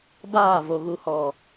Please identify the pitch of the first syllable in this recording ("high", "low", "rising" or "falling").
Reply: falling